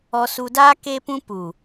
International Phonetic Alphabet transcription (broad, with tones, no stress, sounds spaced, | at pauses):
ɔ˧ s u˧ d aː˦ k e˦ p ũ˦ p u˨